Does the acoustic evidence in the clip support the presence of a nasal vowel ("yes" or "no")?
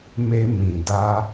yes